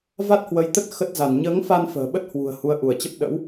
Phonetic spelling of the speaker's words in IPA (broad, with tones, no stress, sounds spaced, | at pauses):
v a˦˥ t̚ h w ə˨˦ j t̪ ə˦˥ t̚ x ə˦˥ t̚ z a˧˩ n ɲ əː˨˦ ŋ f a˧ n f ə̤ː˨˩ ɓ ə˦˥ t̚ h w ṳ˨˩ ə̯ h u˨˦ ə̯ ʔ u˧˩ ə̯ t͡ɕ ə˦˥ p̚ ɗ ə̰˧˥ w